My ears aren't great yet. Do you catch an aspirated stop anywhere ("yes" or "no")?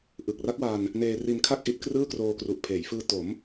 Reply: yes